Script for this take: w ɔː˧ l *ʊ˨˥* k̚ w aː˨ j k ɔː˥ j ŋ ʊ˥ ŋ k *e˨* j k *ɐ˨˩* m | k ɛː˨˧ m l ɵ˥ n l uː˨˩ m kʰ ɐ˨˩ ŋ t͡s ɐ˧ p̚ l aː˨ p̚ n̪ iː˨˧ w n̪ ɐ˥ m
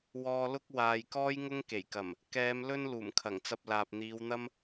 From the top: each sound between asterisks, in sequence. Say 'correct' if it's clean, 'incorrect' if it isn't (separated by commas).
incorrect, incorrect, correct